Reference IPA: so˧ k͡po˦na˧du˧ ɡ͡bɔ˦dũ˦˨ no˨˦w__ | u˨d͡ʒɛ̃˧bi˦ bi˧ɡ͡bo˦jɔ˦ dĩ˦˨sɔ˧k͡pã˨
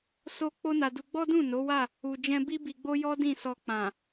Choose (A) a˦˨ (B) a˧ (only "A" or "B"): A